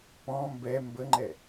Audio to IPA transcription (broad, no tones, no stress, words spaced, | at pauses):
pɔ̃ mbɛ mbəŋ͡ǃɛ